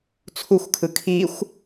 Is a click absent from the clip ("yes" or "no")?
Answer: yes